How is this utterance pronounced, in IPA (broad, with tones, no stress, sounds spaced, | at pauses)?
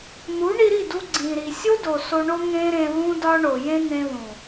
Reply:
n̪ u˨˦ ɳ i˧ ɾ i˦˨ d u˧ ɡ͡ǀ ĩ˨ ɾ i˨ sʲ o˦ d o˨ s o˧ ɳ o˦ ŋ ẽ˦ ɾ ẽ˧ ð ũ˦ d ɒ˦ ɳ o˨ j ẽ˦ n̪ ẽ˧ ð ũ˨